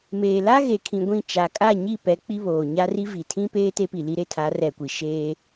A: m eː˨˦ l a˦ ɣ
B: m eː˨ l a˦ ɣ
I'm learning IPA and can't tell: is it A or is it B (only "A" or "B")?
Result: B